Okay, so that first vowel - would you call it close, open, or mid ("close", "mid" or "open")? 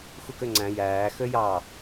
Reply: close